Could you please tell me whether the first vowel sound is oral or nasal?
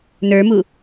oral